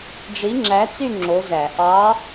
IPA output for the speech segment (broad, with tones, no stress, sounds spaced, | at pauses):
ɖ͡ʐ i˨˥ ŋ͡ǁ æ˨˥ t͡s y˥˧ ŋ͡ǁ o˨˥ z æ˧˩˧ ʔ ɑ˨˥